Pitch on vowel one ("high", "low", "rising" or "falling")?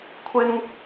high